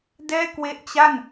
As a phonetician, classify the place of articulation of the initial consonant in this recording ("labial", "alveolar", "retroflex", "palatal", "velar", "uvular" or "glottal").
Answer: alveolar